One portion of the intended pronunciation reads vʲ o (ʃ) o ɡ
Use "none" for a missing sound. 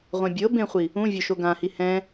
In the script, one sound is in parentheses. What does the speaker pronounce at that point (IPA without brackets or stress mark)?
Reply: ʃ